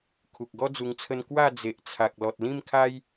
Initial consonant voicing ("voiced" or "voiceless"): voiceless